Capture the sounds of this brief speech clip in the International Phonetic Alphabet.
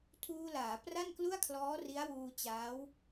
tʰuː˧laː˩˦ pra˥˩nklu˥˩a̯kʰlɔː˦˥ ri˦˥a̯wuː˧ t͡ɕaː˦˥w

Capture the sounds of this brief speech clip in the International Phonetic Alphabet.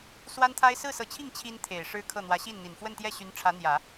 swa˥nt̪ʰa˥ɪ̯ sɹ̩˥˩sɤ˧˥t͡ɕʰi˥˩ŋ t͡ɕʰi˥nt̪ʰe˨˩ɪ̯ ʂɻ̩˥kʰɤ˥˩n̪wä˧˥ ɕi˥˩nn̪i˨˩n fwə˥˧nt̪jɛ˥˩ɕy˧˥n ʈ͡ʂʰä˧˥n̪jä˨˩˦

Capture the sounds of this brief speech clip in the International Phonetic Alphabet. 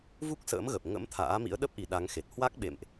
vu˦˥k̚sə̰ː˧˥m ɣə˨˩p̚ŋə̰˧˥m t̪ʰa̰ː˧˥mḭ˧˥ə̯ɗə˦˥p̚ʔi˨˩ ɗa˨˦ŋxe˨˩t̚ hwa˦˥k̚ɓḛ˧˨mʔ

